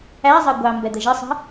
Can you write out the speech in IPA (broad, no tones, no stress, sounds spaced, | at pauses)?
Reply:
æ zˤ ɜ ɡʷ ɑ m b ɛ d̪ ə ʒ ɪ sˤ ə̤